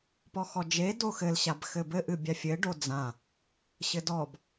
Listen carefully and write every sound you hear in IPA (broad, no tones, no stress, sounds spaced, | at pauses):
p ɔ x ɔ d͡ʒ e d o x ɘ l ɕ a b x ɘ b ɘ ʔ ɨ bʲ a fʲ ɘ ɖ o d͡z ã | ɕ ɘ d ɔ b